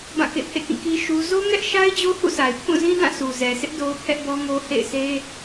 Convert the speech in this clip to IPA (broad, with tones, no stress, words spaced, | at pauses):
bã˦˨kḛ˦˨pʰḛ˦˨kĩ˦˨ ki˦ ʃu˦ zo˦ ŋɛ˦ʔʃa˦ɪ̯ d͡ʑo˦hṵ˦˨sʰa˨ɪ̯pʰũ˦˨ zĩ˦dã˦˨su˨ zɛ˨sʰɪ˦ʔ do˦ʊ̯pʰɛ˦ʔbɔ˦ŋo˦ hḛ˦˨ɪ̯se˦